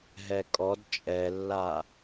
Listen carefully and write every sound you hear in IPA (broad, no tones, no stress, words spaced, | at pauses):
ɦɛkʼɔd t͡ʃʼɛlːa